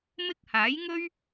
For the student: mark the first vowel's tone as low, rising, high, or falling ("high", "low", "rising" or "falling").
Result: high